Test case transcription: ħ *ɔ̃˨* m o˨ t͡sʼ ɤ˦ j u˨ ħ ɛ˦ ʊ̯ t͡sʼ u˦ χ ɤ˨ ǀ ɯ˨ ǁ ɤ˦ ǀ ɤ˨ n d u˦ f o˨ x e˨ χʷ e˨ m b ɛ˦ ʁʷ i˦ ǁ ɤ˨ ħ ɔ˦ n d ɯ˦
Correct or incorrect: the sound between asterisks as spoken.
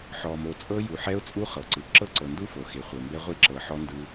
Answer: incorrect: ɔ˨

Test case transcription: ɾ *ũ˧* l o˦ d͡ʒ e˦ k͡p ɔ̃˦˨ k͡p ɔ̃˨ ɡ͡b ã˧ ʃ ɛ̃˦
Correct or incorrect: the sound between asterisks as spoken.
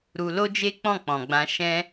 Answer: incorrect: u˧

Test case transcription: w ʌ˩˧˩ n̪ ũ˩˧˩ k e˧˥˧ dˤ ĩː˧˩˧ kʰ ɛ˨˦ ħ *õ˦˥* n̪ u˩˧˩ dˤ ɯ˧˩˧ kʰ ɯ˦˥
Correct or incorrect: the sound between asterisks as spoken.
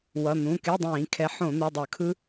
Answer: incorrect: õ˧˩˧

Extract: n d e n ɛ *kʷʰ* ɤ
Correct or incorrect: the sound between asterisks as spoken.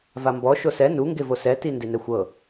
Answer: incorrect: xʷ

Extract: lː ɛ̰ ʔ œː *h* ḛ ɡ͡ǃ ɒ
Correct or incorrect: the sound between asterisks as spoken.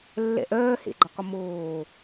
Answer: correct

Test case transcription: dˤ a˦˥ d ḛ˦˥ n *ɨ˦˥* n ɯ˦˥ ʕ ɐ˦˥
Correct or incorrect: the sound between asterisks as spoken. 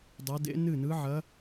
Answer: incorrect: ɨ˥˧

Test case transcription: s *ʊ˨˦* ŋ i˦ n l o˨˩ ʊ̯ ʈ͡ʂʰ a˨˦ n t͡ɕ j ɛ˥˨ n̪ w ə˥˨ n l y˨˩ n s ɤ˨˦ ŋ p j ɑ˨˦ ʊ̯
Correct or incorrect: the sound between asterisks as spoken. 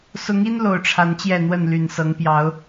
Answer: correct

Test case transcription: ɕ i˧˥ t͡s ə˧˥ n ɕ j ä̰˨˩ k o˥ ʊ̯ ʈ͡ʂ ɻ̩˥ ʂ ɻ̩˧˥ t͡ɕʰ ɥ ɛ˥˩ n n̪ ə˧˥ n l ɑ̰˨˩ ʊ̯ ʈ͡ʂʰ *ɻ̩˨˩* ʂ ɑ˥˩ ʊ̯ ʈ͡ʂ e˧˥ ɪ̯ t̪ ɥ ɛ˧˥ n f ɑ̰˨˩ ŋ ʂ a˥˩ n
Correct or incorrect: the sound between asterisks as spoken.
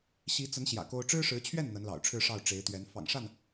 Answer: incorrect: ɻ̩˥˧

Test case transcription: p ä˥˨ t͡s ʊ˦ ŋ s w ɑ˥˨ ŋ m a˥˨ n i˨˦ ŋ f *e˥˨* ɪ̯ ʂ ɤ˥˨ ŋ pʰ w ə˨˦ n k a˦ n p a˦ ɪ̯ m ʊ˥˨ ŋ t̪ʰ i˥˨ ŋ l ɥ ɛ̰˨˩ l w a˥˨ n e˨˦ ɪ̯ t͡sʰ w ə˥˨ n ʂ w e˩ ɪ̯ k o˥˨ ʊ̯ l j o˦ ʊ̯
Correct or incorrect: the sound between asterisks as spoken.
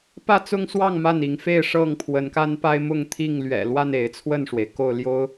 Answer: correct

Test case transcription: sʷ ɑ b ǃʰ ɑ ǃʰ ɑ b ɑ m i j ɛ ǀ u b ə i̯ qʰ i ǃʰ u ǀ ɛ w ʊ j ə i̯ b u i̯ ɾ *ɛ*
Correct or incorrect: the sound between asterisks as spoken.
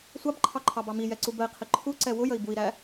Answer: incorrect: æ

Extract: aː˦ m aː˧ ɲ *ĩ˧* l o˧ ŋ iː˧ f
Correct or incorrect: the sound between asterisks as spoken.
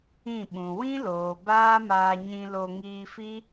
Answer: correct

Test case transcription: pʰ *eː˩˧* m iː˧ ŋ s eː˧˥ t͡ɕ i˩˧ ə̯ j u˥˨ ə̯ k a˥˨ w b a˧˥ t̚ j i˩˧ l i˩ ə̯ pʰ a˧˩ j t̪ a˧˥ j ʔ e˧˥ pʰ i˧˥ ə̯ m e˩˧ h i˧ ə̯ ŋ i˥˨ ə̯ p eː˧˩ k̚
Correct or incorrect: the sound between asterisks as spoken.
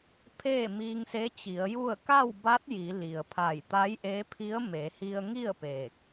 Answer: incorrect: eː˥˨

